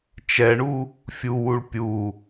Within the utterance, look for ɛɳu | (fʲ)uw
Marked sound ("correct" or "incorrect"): correct